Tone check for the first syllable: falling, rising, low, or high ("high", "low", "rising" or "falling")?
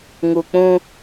low